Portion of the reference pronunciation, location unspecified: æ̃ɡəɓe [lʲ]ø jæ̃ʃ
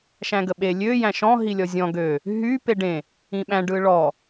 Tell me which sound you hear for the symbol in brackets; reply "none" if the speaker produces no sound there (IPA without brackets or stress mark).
lʲ